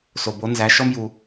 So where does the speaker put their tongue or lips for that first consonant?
tongue tip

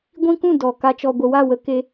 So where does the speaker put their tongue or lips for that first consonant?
velum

